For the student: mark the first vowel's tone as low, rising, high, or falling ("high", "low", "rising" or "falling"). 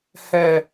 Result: low